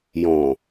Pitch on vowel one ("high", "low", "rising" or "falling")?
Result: low